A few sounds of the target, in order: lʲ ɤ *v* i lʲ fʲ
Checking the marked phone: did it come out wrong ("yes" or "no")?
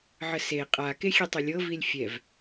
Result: no